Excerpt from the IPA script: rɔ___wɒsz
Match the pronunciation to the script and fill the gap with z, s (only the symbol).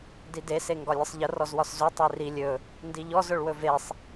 z